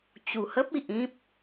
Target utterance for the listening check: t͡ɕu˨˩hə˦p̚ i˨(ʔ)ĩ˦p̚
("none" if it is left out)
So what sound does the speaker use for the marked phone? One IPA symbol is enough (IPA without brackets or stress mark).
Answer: ʔ